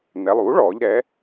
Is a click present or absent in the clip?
absent